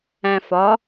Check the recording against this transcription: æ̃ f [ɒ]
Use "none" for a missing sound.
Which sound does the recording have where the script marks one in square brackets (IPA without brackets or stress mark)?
ɒ